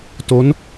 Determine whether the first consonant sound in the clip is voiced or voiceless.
voiceless